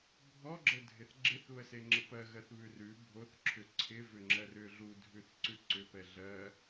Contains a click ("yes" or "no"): yes